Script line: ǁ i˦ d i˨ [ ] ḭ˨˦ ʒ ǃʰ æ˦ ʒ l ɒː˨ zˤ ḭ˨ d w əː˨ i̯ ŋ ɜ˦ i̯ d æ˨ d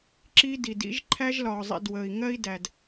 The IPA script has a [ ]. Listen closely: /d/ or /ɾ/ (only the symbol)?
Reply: d